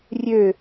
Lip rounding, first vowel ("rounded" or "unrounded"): rounded